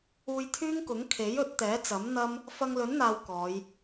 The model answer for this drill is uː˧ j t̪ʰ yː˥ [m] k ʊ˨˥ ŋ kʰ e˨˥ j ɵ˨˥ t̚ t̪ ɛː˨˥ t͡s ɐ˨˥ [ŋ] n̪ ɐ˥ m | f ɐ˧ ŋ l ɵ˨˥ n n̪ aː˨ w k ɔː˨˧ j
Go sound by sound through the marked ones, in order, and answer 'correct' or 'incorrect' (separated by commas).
incorrect, incorrect